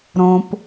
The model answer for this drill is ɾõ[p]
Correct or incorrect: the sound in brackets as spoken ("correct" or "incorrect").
correct